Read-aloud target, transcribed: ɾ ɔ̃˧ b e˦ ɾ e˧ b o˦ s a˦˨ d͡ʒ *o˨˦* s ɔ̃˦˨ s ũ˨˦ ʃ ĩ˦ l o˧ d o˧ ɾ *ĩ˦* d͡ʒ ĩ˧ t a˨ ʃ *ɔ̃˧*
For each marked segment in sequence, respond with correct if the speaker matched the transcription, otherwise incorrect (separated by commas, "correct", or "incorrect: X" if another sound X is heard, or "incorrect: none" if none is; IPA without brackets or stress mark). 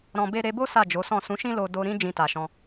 correct, correct, correct